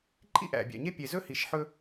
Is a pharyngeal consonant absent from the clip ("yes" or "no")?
no